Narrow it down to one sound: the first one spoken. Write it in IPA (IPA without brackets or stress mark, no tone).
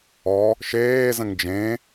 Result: ɔ